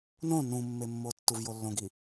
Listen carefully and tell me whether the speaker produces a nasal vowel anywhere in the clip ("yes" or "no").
yes